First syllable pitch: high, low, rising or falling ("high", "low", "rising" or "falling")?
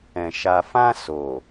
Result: low